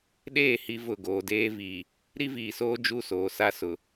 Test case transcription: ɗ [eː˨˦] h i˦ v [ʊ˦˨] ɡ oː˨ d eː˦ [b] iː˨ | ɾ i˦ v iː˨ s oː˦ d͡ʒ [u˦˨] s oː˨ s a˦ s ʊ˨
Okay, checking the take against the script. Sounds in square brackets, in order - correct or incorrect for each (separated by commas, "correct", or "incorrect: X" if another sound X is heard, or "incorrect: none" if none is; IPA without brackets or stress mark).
incorrect: eː˦˨, correct, incorrect: v, correct